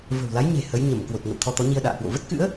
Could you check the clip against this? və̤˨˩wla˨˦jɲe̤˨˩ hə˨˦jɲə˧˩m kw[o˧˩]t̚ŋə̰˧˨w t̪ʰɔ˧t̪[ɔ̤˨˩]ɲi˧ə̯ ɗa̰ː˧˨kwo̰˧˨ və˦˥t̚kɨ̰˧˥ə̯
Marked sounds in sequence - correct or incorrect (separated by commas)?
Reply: incorrect, incorrect